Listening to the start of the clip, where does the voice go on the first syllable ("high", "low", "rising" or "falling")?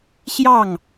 falling